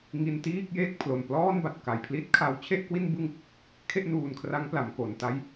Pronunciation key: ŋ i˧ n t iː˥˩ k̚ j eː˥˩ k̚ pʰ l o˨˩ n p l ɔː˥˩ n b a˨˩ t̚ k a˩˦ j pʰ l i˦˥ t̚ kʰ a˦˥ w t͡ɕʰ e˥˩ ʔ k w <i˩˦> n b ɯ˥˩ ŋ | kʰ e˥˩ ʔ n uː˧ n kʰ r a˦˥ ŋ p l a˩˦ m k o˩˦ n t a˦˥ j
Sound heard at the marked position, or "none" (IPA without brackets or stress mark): i˥˩